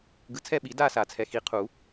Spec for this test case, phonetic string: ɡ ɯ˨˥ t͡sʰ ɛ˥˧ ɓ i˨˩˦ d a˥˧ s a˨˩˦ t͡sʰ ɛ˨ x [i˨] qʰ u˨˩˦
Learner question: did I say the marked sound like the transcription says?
yes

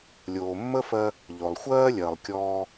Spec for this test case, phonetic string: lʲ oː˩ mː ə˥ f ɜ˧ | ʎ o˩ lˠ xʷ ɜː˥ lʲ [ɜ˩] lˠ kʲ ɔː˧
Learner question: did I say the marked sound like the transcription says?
yes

